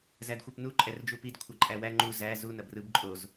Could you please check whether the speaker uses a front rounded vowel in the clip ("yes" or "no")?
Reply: no